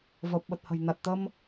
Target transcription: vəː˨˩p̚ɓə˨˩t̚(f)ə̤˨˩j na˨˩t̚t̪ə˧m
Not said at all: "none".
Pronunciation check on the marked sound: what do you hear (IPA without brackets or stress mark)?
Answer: h